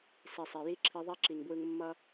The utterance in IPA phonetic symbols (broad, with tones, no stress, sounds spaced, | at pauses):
s i˨ sˤ e˨ j i˦ ǁʰ i˧ ðˤ ɛ˦ ǁ i˨ ŋ b w ɯ˧ ŋ mː ʌ˦